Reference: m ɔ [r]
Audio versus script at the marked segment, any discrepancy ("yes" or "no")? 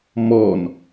yes